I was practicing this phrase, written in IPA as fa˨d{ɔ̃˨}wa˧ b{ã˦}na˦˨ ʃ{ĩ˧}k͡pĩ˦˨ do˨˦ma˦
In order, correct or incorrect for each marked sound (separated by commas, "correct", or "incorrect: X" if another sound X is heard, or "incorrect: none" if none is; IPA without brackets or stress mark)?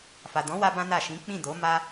incorrect: ɔ̃˨˦, correct, incorrect: ĩ˨˦